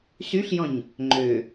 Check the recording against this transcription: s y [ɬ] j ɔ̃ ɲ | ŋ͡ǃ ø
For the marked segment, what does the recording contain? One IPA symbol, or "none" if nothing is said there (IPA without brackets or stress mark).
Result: ɬ